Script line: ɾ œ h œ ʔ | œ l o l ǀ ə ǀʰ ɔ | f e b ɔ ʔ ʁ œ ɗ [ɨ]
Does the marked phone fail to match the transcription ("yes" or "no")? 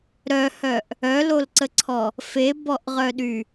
yes